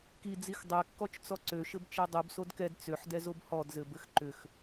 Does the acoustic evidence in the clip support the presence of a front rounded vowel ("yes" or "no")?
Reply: yes